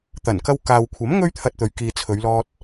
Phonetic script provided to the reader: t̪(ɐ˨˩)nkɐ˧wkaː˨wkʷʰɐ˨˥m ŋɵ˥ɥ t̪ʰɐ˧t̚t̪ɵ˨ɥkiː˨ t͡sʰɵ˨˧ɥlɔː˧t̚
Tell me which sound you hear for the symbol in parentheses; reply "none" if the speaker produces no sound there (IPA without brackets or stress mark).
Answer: ɐ˨˩